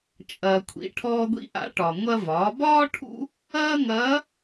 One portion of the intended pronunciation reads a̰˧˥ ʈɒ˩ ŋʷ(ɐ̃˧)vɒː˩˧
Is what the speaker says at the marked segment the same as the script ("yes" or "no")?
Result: no